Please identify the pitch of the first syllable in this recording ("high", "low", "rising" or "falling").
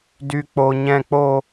high